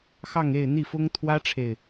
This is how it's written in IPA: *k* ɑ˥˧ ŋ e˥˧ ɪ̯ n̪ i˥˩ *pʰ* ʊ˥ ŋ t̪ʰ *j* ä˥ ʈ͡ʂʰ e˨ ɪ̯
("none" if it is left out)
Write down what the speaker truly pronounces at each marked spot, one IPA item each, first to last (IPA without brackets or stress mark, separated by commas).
x, f, w